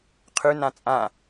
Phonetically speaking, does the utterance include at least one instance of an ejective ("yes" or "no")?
yes